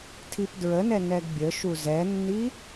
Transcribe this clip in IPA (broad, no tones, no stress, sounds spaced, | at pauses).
tʰ i p d ɹ ə n ɛ n ɛ ɡ bʲ ə ʃ u z ɛ nː i